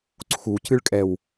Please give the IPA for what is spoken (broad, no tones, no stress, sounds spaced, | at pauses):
ǀʰ u c ɨ ɭ kʼ ɛ w